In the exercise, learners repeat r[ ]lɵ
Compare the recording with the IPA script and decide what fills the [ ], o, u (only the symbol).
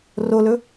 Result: o